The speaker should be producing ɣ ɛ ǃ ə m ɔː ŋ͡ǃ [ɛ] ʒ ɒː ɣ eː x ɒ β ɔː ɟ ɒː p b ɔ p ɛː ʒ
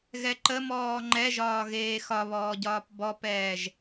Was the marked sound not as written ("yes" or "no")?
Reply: no